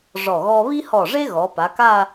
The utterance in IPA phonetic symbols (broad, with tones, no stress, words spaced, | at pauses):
ʐɔ˧˩ ɣɔ˥ βi˥hɔ˧˩ʐe˥ ɣɔ˩˧pa˩˧ka˥˧